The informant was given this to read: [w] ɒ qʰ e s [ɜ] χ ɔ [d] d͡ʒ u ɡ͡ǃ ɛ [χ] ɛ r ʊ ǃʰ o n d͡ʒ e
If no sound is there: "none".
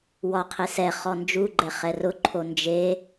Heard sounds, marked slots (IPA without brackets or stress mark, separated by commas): w, ɛ, n, χ